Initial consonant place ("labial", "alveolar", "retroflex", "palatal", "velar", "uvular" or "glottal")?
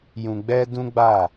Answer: palatal